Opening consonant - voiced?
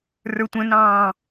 yes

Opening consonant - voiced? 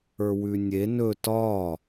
yes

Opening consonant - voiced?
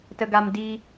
no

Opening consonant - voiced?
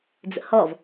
yes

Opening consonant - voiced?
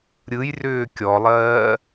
yes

